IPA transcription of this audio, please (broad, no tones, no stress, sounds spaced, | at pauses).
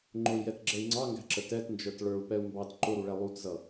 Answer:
ŋ͡ǃ ʊ i̯ j ɛ t ɡ͡ǁ ɛ i̯ ŋ͡ǀ ɑ ŋ ɡ æ̤ ǁ ə t ɛ t n d͡ʒ ə˞ t ɭ ə˞ u̯ p ɛ u̯ m b ɑ t ǃ ʊ ɾ u ɭ ɛ lˠ u t z ʌ